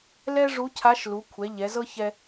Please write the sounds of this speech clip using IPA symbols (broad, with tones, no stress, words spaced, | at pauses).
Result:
lɛ˥ ʐu˧˥cʰa˧˥ʃlu˩˧ kʷʰɛ˩˧ ʎɛ˩˧zɤ˥çɛ˧